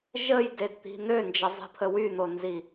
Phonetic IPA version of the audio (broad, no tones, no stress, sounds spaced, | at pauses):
ʒ ə j d e d t̪ i̤ n̪ ø n d͡ʒ ə zˤ i̤ pʰ ə w y n̪ o n z i